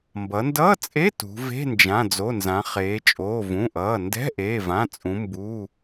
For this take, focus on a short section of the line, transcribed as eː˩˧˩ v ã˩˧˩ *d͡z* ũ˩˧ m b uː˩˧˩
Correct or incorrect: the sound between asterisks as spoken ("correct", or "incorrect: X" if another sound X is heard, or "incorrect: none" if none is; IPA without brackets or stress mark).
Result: incorrect: t͡sʼ